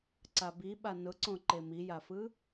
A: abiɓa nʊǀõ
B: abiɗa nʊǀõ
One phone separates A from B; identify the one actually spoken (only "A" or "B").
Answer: A